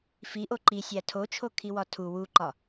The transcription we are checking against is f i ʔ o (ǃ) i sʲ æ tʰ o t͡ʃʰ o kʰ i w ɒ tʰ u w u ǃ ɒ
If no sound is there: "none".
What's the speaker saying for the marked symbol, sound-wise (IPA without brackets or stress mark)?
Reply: ǃ